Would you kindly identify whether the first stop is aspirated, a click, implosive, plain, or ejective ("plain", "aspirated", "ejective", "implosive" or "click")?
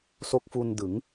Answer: plain